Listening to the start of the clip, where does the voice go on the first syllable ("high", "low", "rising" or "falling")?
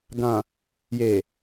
low